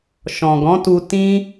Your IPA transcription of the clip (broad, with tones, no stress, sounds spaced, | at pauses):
ʃ ɔ̃˨ ɡ ɔ̃˨˦ t u˧ t ĩ˦